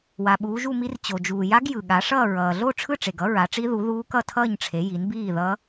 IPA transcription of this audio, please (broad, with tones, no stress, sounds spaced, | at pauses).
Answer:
w a˨ ɓ uː˨˦ ʒ u˥˧ m i˦˥ r t͡ɕ o˨ d͡ʒ uː˨ j a˦˥ ɡ j ɯ˨ ɠ a˨˦ ʂ ʌː˥˧ ɹ ʌː˨ ɮ o˥˧ ʈ͡ʂʰ ɯ˥˧ ʈ͡ʂ e˨ ɡ ʌ˦˥ ɹ a˨˦ ʈ͡ʂ i˦˥ ð u˨˦ ð uː˦˥ k ʌ˥˧ tʰ ʌː˥˧ ɲ ʈ͡ʂʰ e˨˦ j i˨˦ n b iː˥˧ ð ʌː˦˥